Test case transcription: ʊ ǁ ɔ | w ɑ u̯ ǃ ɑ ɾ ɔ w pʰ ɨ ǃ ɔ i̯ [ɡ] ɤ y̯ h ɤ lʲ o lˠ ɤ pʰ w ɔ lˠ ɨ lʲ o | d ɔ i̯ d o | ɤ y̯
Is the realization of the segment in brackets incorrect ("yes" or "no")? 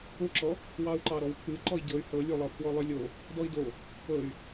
yes